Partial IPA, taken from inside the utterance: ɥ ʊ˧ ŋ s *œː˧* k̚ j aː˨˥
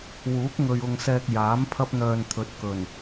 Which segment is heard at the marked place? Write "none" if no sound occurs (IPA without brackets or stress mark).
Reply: ɛː˧